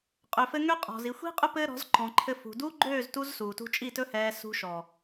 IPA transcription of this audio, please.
qʼ ø˨ f ɘ˧ ŋ ø˦ qʼ ɔ̤˨ z i˨ xʷ i̤˦ qʼ ɵ˦ p ɘː˦ ɾ ɔ̤˨˦ z ǃ ɔ̃˨ ǃʰ ɘ˧ f ṳ˨ d u˦ ɡ͡ǃ øː˦˨ z t u˧ z s uː˨ t ṳ˧ t͡ʃʼ i˦˨ t ɵ˦ h ɛː˧ s ṳ˧ ʃ ɔ˨

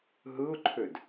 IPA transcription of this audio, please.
ɦ ɯ ʊ̯ ǃʰ ø d

